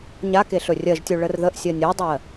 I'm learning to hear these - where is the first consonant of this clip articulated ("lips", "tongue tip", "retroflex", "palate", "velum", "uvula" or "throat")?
palate